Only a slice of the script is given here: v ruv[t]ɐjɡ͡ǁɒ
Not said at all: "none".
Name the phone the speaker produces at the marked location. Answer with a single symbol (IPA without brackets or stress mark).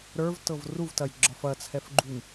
t